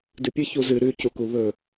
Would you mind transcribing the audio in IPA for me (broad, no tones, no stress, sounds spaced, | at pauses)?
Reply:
d ɨ pʲ ɨ ç u z ɨ ɾ ʉ c u k u β ɵ